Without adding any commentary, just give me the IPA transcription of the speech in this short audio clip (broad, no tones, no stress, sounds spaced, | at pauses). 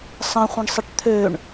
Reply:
sˤ ə̃ χʷ ə̃ ɳ sˤ ə ʈ t̪ʰ ø ɳ